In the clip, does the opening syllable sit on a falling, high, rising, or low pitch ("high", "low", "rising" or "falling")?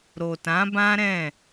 low